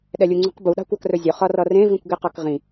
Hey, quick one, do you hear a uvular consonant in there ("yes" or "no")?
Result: yes